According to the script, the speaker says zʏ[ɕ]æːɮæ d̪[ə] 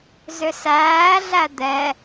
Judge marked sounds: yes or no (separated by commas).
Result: no, no